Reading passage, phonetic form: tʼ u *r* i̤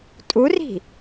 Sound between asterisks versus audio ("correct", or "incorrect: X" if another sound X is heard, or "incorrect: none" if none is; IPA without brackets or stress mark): correct